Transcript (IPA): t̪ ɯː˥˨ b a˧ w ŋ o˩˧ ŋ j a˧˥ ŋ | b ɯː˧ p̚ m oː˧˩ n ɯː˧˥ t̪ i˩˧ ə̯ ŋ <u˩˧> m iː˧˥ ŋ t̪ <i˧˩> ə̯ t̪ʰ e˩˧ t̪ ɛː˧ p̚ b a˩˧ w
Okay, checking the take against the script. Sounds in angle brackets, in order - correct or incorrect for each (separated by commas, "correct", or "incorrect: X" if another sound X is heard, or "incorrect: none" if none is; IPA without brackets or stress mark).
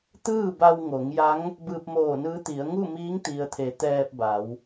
incorrect: u˥˨, incorrect: i˩